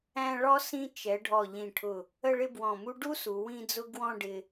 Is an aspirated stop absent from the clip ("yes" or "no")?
no